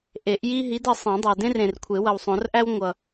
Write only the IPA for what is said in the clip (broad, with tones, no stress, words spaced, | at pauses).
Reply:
ʔe˨˩˦ʔji˥ ɦi˨˥dʌ˨ sˤẽ˨˩˦dˤæ˨dẽ˥rẽ˨r kʷʰe˨˩˦wʌ˨wsˤõ˨˩˦rʔæ˥w ŋʷʌ˨